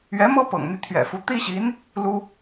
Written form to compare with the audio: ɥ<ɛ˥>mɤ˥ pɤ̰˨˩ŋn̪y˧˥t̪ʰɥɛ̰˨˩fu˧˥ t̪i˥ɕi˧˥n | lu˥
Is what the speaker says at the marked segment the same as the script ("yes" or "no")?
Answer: no